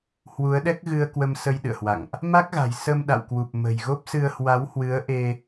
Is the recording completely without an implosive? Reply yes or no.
no